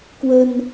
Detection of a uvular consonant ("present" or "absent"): absent